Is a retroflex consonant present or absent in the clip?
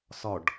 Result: present